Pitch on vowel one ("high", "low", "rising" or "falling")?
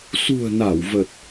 low